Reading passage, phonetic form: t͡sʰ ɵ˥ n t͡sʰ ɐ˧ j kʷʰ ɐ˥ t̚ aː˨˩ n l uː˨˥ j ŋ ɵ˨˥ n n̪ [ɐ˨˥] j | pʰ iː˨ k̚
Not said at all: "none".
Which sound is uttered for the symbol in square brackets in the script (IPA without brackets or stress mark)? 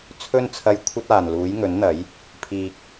ɐ˨˥